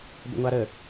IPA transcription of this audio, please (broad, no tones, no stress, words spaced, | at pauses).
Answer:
d̪ə̰ŋʷaɾə